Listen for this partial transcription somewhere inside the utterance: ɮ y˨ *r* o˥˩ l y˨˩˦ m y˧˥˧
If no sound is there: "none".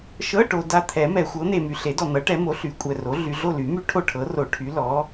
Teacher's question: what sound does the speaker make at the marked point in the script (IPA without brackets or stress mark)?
ɮ